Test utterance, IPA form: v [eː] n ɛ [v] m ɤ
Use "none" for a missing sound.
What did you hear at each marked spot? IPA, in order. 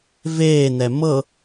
eː, none

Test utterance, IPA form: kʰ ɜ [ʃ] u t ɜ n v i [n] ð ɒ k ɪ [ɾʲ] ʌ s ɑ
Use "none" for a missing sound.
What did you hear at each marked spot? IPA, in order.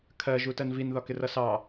ʒ, n, r

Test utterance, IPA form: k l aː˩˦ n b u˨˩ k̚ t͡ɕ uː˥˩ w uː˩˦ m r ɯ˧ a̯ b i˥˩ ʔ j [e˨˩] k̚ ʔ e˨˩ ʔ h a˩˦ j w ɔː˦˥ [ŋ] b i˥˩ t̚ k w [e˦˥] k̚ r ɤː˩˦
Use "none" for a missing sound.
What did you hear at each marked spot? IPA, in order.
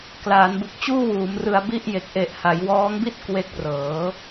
e˨˩, ŋ, e˦˥

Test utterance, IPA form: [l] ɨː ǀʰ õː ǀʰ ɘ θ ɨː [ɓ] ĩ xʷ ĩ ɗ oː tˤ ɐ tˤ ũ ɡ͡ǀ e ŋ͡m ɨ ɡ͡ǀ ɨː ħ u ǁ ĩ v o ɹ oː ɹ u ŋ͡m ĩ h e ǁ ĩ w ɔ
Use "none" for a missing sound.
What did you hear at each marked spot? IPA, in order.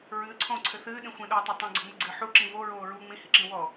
ɹ, ɗ

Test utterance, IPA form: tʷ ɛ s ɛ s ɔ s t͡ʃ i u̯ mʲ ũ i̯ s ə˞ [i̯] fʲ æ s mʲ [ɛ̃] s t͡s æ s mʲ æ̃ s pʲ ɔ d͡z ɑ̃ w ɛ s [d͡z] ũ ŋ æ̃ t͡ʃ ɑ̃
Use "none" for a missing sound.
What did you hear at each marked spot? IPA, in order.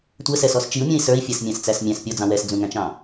i̯, æ̃, d͡z

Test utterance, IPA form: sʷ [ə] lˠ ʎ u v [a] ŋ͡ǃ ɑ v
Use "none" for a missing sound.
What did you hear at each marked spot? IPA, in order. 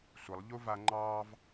ə, a

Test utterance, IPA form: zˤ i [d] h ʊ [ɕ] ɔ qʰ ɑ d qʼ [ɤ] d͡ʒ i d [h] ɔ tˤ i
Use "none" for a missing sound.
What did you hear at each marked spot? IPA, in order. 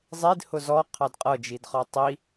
d, z, ɤ, χ

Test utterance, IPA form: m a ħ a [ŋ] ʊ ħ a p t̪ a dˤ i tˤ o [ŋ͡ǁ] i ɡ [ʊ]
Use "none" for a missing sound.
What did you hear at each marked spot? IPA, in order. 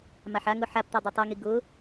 ŋ, ŋ, ʊ

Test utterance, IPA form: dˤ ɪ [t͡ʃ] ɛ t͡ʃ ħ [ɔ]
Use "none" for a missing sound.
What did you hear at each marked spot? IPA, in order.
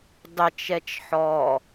t͡ʃ, ɔ

